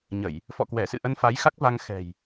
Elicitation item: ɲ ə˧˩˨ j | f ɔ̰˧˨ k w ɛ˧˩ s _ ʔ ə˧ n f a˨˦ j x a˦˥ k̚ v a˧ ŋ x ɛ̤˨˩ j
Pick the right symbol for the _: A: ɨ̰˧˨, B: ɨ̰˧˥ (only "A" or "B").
A